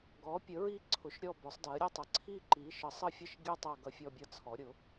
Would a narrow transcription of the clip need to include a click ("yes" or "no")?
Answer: yes